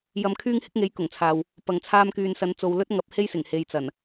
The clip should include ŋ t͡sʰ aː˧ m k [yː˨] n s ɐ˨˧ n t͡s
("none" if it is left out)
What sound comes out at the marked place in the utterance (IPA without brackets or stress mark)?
yː˨